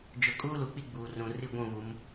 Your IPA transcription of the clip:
d͡ʒʊ˨˦kʼuː˦lu˨k͡pi˦ ɡ͡buː˨rũ˨ ri˦˨ɡʷũ˦˨βu˨˦m

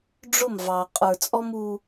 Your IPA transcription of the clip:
ɖ͡ʐʊ˦˨mvɑ˨ qʼə˞˨t͡sʼɔ˦mu˦

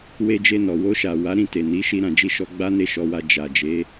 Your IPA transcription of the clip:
we˧d͡ʒe˧nɔ˨ wo˧ʃa˨wa˨˦ ɾĩ˦˨ te˨ ni˨˦ʃi˧ ɾã˨d͡ʒi˧ ʃɔ˧ ɡ͡ba˦ne˦˨ʃɔ˧wa˧ d͡ʒa˨d͡ʒe˨˦

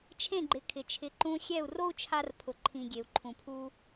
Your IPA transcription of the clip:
t͡ʃʰẽ˥˩ɡ͡ǃɪ˩˥kʰɪ˩ t͡ʃʰɪ˩˥ǃũ˧ xʲɛ˥˩u̯ro˥u̯ t͡ʃʰa˧rpʰʊ˩ǃʰĩ˩ ɡʲe˩u̯ǃʰũ˩pʰu˧

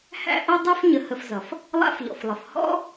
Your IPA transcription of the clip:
hæ̰˦ ʔʌ˥dˤɛ˥f ɲə˨hə˨fzʌ˩f | lˠa̰˦fʎɔ̰˩flˠə˩f hɔ̰˥

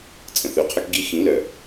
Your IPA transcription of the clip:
t͡sʼə̃˨θø˨qʰœ˦kɡi˦ xĩ˨˦lœ˨

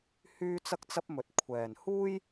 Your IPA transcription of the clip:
hyː˥ t͡sɐ˥k̚t͡sɐ˥p̚mɵ˧t̚ kʷʰɛː˨nhuː˥j

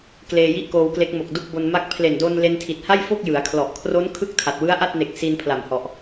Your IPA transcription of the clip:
kleː˧ji˥˩ʔkoː˧wkle˦˥k̚ mo˨˩k̚ du˥˩k̚bo˧nma˥˩k̚ pʰle˨˩ndo˧n le˧ntʰi˨˩t̚ha˥˩jfo˥˩k̚ jɯ˩˦a̯kʰlɔ˨˩ʔ kʰro˦˥n kʰɯ˥˩k̚tʰa˨˩t̚ wɯ˦˥a̯ʔa˥˩t̚ne˨˩k̚ si˧npʰla˨˩mhɔ˨˩ʔ

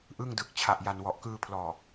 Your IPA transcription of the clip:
ʔɯ˥˩ŋdɯ˨˩k̚ t͡ɕʰa˨˩ʔja˨˩n wɔ˨˩ʔkɯː˧pʰlɔː˨˩

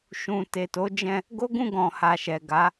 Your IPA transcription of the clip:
ʃũ˨te˨to˨˦d͡ʒɛ̃˧ | ɡo˦ɡũ˦˨ɡɔ̃˨ha˨ ʃɛ˨ ɡa˨˦

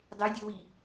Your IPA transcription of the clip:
dˤedʲowi

